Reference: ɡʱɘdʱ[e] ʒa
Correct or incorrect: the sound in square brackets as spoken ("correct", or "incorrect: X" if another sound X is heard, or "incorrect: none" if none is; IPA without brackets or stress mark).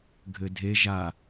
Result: correct